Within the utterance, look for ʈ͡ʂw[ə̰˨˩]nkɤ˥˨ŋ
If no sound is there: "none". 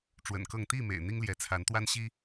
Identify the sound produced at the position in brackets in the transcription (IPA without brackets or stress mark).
ə̰˨˩